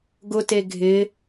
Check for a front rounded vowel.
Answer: absent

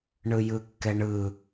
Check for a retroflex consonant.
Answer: present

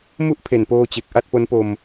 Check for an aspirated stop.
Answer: present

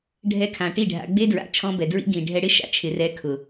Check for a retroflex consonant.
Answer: present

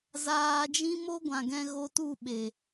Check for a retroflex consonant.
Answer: absent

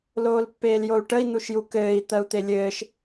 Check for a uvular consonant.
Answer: absent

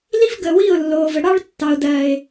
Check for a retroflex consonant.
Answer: present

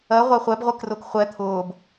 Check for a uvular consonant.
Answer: present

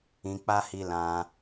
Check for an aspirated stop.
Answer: absent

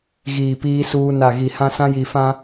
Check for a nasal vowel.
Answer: present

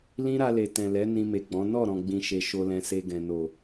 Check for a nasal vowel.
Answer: present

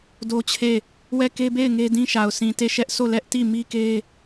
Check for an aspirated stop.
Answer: present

